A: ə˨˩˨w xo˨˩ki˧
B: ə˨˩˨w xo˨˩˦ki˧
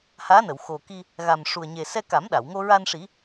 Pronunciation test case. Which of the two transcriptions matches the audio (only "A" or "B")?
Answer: A